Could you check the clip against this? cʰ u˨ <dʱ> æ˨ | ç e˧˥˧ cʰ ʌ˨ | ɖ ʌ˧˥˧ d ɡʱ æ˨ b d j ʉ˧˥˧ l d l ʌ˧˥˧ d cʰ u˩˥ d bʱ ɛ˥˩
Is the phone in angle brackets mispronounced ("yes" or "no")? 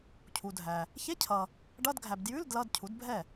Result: no